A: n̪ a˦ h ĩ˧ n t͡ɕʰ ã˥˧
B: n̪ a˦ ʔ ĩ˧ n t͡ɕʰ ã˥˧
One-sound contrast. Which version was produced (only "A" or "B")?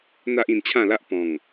B